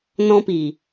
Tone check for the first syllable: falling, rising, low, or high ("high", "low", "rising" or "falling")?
high